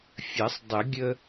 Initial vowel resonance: oral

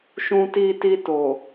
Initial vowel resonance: nasal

